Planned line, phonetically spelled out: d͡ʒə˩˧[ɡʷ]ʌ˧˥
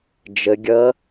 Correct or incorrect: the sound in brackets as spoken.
incorrect: ɡʲ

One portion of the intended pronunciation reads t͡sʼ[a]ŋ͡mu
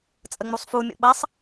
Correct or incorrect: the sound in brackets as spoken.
incorrect: ə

